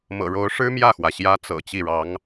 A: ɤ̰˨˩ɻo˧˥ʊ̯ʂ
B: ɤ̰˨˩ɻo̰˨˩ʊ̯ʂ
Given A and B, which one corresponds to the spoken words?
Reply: A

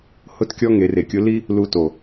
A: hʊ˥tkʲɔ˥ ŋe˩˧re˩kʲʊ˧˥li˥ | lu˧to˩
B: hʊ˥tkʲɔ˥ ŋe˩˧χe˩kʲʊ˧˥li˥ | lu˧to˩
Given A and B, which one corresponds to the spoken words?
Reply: A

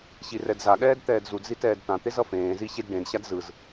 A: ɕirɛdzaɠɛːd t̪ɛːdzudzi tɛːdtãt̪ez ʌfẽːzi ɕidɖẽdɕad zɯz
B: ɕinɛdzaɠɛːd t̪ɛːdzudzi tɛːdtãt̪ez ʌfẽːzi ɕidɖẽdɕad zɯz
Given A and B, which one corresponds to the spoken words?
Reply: A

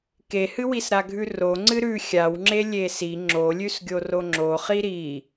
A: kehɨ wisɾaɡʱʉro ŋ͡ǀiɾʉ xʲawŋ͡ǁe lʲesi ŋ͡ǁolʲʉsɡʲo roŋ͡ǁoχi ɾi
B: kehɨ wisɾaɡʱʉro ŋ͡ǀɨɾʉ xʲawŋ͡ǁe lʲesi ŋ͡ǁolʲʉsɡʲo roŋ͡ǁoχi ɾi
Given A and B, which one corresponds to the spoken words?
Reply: B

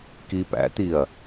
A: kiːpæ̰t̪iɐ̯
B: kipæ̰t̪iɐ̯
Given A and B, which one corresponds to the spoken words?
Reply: A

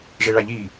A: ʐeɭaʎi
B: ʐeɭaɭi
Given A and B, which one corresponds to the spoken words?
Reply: A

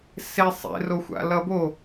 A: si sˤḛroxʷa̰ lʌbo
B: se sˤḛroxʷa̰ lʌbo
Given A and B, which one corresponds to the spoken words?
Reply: B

